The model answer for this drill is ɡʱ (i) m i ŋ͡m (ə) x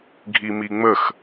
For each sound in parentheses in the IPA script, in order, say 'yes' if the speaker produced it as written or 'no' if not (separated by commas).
yes, yes